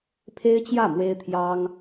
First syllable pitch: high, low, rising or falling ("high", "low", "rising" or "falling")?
high